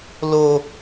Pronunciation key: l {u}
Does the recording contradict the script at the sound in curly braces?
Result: yes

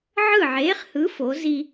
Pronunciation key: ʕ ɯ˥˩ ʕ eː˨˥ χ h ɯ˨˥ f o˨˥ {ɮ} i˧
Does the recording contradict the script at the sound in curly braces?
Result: yes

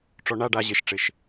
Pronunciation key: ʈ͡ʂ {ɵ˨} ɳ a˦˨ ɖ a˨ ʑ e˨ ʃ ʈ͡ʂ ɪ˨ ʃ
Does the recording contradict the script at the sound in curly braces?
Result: yes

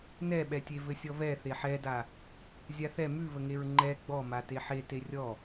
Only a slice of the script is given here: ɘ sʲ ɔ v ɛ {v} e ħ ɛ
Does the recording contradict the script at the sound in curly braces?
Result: yes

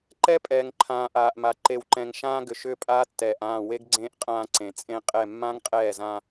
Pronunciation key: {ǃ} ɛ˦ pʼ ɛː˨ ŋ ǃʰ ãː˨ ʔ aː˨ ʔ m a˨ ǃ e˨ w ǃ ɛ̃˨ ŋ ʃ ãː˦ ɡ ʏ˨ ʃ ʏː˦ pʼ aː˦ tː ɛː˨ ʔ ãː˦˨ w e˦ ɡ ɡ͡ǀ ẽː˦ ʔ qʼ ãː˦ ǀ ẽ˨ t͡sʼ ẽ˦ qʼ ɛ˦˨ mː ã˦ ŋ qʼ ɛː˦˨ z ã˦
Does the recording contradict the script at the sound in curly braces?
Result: no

